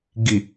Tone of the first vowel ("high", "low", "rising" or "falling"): low